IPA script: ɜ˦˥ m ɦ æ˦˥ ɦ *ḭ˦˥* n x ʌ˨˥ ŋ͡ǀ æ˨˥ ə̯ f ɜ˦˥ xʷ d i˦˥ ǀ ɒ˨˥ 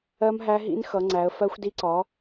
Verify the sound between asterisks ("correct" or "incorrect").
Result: correct